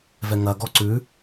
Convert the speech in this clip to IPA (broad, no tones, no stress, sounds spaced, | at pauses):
v ɛ ŋ ɐ ɡ ɔ ǀ ʉ